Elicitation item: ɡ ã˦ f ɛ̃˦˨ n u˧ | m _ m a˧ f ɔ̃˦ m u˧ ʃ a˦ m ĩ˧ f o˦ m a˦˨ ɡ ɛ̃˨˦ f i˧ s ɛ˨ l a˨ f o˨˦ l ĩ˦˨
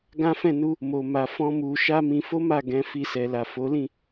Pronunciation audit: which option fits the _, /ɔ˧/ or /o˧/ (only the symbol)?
o˧